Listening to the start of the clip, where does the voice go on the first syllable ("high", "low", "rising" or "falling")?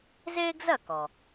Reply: high